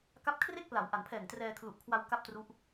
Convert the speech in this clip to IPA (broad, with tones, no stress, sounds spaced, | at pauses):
k a˦˥ p̚ kʰ r e˥˩ k̚ p l a˩˦ w ʔ a˩˦ n pʰ ɛː˨˩ ŋ t r ɛː˧ kʰ l u˨˩ ʔ kʰ w a˧ w k a˥˩ p̚ t r u˦˥ ʔ